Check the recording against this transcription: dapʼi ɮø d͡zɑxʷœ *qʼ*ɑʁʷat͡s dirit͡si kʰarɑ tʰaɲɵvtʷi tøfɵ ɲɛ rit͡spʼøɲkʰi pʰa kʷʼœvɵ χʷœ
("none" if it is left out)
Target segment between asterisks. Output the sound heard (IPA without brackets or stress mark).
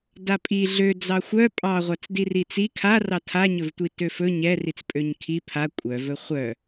pʼ